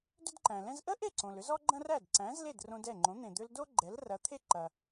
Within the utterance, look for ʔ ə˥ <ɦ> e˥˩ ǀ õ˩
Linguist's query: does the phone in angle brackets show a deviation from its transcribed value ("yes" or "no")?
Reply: yes